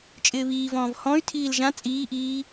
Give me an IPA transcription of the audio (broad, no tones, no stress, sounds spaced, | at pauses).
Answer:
t͡ʃʼ ɪː β iː v ɔ̃ː v h ɔ̃ y̯ tʰ iː l ʒ ã t͡sʼ iː ʔ iː